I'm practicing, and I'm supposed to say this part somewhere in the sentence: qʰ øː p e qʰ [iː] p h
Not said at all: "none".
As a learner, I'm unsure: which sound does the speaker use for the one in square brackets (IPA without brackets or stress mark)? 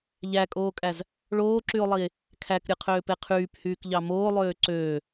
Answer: yː